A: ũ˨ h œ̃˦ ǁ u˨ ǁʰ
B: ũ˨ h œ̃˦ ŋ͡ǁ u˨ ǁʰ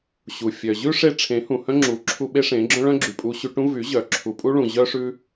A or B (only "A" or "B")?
B